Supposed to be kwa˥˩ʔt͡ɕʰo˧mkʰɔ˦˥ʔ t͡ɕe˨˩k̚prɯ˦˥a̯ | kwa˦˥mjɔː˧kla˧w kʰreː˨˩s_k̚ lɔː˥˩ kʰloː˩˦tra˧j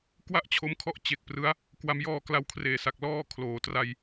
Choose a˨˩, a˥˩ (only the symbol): a˨˩